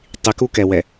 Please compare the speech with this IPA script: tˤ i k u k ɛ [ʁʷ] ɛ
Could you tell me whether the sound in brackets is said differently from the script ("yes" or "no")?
yes